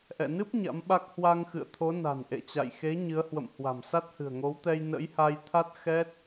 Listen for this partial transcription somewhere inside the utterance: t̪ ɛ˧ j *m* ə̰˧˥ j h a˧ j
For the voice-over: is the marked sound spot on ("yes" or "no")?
no